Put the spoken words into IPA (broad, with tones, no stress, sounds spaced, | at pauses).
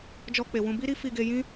d͡ʒ ɔ˧ k͡p e˨ w ũ˧ b i˦ ɾ i˦ f i˧ ɡ e˧ j ĩ˦